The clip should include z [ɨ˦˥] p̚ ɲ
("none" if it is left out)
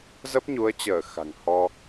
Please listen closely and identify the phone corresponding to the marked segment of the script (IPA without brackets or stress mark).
ə˦˥